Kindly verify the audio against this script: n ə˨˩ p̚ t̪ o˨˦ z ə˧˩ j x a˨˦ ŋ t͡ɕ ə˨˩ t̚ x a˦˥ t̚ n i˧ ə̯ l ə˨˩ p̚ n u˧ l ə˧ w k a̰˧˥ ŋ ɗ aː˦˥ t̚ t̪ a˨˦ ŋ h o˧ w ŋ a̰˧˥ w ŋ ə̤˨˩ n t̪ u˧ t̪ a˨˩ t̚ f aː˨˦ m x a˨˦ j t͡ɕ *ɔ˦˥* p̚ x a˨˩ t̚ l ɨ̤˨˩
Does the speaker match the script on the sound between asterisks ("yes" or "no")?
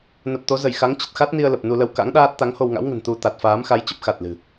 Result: no